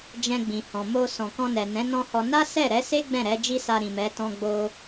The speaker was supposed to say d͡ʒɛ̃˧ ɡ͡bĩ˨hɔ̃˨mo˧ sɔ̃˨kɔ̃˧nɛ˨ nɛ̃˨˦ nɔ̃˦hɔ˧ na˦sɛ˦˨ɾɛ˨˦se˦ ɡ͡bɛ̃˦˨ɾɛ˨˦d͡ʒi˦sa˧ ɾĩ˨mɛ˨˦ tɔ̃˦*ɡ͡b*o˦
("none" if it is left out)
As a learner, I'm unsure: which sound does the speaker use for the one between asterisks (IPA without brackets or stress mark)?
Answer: ɡ͡b